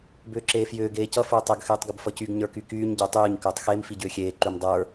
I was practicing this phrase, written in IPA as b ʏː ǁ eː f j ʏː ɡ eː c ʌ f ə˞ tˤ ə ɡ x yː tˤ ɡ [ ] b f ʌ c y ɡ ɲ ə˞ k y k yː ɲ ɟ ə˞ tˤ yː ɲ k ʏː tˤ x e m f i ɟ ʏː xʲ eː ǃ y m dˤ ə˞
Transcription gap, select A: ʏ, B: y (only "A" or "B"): A